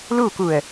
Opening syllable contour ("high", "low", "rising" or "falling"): falling